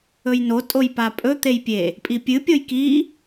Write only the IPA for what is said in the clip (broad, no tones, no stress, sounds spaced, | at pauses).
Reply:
ɵ j n o tʼ o j p a pʼ ɵ t̪ e j pʲ e | pʼ i pʲ ɨ pʲ o j k i